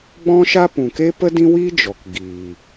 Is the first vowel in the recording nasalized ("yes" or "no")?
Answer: yes